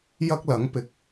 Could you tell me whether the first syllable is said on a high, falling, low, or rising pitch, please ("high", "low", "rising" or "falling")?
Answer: high